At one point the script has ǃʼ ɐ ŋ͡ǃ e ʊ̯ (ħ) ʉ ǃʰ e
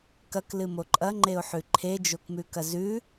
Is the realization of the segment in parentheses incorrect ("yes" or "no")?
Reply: no